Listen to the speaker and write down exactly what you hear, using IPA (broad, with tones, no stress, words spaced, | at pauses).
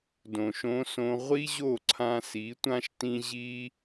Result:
dõ˧ʃõ˦sõ˦ ʁʷi˦ʑo˦˨ǀʰã˧si˨˦ tʷã˦ʃtĩ˦ ʑi˦